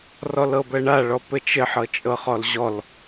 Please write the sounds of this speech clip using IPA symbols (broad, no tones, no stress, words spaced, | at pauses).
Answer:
rɔlɤbɜɳa ɭɔpɘt͡ʃɘ ħɤt͡ʃʼɤχɔlʑɔl